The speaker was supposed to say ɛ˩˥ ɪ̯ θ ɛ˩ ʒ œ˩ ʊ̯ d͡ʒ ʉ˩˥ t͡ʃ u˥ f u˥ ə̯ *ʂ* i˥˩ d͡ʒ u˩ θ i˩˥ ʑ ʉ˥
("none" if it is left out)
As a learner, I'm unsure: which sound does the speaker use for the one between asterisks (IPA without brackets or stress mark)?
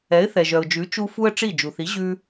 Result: ʈ͡ʂ